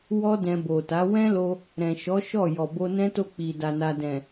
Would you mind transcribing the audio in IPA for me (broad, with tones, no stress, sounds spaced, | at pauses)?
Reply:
w ɔ˦ d ɛ̃˧ b o˨ t a˨˦ w ɛ̃˦ l o˧ | ɾ ɛ̃˨ ʃ ɔ˨˦ ʃ ɔ˦˨ j ɔ˨ b o˧ n ɛ̃˦ t o˦˨ k͡p i˨ d a˨ n a˨ d ɛ̃˨